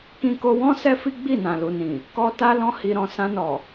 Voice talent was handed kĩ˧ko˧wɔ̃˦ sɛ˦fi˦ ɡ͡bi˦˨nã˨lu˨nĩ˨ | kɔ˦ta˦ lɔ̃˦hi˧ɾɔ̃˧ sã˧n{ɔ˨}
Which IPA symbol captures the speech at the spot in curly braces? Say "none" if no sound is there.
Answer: ɔ˨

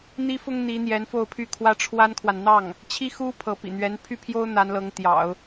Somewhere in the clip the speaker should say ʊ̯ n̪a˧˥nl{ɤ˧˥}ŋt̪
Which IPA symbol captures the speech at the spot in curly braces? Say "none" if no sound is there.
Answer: ɤ˧˥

